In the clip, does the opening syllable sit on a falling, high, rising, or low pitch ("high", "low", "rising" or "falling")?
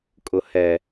low